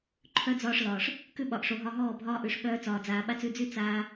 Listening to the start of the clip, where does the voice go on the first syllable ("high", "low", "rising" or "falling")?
high